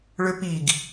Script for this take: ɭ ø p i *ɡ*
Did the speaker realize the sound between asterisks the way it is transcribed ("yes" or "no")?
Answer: yes